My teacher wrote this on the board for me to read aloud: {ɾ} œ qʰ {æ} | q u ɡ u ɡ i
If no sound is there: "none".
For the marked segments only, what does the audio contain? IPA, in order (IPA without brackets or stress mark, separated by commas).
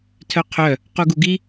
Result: tʰ, œ